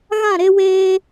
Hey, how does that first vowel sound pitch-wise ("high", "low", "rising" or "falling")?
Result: falling